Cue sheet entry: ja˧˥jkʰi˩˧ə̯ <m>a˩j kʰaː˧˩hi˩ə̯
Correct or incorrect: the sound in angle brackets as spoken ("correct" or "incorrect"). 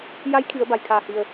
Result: incorrect